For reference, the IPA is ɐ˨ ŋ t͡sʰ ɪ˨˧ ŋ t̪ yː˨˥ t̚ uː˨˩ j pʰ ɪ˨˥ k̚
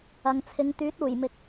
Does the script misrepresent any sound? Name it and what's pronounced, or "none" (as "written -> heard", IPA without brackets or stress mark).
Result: pʰ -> m